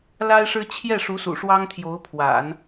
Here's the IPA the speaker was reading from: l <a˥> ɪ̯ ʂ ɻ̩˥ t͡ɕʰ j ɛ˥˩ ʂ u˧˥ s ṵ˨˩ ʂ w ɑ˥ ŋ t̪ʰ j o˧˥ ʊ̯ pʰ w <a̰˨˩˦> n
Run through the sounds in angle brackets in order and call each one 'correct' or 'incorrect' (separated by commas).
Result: correct, correct